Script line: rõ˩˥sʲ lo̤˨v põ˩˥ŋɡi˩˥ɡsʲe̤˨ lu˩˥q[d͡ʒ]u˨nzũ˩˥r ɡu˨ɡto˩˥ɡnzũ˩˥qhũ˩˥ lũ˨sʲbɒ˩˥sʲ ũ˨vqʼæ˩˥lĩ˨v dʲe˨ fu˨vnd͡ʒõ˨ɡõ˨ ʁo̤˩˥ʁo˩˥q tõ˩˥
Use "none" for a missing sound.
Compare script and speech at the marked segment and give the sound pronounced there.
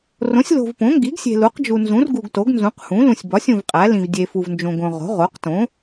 d͡ʒ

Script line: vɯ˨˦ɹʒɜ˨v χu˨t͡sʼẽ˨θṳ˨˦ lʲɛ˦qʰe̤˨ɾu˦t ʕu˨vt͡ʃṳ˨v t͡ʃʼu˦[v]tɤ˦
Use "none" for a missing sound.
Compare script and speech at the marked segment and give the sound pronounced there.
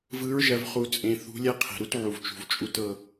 none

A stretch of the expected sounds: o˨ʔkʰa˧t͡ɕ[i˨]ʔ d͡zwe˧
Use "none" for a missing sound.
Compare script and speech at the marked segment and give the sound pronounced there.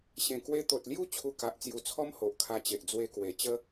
e˨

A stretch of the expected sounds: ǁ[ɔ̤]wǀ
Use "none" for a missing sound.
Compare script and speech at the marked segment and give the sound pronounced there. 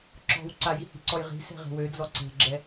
ɔ̤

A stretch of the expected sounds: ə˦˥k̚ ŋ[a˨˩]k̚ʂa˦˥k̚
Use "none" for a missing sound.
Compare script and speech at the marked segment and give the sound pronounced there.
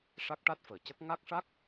a˦˥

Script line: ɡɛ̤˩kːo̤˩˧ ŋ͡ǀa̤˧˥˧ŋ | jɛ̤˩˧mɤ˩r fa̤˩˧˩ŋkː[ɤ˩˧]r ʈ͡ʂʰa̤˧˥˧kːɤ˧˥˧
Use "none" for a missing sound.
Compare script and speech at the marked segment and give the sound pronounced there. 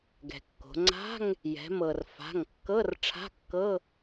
ɤ˧˥˧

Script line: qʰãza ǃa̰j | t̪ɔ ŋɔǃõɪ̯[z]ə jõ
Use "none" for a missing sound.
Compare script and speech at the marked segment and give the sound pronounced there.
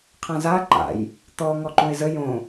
z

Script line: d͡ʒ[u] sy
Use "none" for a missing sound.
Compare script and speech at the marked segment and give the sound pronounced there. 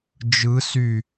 ɯ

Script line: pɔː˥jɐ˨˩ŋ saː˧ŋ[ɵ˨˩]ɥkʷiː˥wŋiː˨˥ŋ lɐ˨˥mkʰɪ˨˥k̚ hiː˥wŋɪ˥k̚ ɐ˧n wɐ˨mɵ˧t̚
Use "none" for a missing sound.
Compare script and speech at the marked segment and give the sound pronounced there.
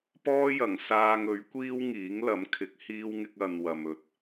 ɵ˨˥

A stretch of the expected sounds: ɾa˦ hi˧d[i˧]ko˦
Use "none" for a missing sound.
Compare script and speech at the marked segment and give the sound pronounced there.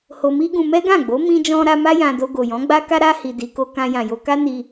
i˧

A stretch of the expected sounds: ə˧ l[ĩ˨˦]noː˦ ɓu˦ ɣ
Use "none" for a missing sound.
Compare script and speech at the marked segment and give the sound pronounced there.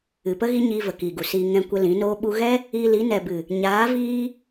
ĩ˨˦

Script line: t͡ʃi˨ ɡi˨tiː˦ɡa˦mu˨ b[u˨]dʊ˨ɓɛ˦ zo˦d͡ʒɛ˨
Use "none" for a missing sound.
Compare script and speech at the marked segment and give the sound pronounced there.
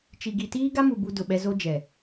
u˦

